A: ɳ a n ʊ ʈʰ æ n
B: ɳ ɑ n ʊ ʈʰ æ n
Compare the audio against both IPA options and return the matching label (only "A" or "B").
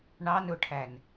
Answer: B